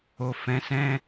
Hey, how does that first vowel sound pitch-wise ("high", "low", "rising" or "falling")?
low